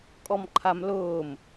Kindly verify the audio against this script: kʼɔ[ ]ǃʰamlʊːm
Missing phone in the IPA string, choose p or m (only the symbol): m